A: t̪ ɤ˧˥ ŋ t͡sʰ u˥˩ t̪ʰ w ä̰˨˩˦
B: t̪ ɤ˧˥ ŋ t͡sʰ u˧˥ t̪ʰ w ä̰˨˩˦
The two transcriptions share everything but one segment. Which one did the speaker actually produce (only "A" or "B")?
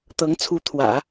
B